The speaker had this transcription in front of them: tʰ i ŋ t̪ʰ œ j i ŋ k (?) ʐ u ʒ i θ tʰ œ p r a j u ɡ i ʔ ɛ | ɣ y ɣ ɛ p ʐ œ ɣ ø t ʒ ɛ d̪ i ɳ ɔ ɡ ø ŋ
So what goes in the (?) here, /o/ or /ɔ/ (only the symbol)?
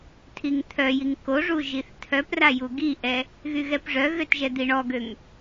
o